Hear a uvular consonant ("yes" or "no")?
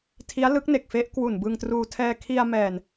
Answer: no